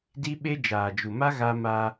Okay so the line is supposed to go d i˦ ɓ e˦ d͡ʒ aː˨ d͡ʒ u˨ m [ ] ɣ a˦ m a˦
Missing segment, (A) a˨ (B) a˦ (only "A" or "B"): B